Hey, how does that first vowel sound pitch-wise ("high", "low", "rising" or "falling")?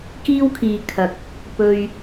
high